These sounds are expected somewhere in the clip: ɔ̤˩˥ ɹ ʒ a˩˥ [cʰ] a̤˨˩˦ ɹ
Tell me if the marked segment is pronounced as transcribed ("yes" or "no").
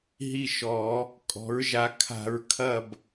no